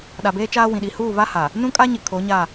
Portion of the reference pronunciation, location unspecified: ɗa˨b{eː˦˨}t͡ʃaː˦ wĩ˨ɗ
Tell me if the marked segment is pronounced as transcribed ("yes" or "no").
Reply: no